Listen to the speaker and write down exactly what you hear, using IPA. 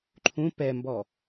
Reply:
ǃʰũ pɛmbɔ

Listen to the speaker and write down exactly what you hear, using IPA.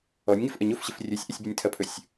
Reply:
ɔnʲŋɪf ʔəɲofɕɪf rʲɵsʲʔɪsʲbɪnʲ tʰɐpʰɵsʲ

